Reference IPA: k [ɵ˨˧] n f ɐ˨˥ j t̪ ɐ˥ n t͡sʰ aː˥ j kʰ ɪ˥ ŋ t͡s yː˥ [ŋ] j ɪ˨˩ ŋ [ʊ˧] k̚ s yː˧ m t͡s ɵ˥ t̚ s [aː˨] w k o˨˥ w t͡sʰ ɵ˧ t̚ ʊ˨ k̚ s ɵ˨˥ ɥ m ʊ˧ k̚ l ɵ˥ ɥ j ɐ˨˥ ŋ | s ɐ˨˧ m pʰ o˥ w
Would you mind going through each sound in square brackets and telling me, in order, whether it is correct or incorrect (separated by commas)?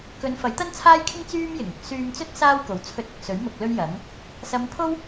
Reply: correct, incorrect, correct, incorrect